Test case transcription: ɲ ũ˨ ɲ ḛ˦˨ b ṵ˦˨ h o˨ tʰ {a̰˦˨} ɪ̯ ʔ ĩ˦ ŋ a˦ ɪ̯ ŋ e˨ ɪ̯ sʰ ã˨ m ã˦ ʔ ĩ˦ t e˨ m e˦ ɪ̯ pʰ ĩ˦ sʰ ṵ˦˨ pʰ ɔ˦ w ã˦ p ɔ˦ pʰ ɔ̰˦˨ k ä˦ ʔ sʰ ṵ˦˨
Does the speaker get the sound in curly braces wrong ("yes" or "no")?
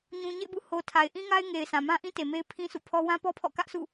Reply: yes